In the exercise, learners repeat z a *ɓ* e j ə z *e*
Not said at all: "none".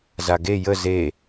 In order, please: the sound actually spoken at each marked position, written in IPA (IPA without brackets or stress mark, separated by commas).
ɡ, e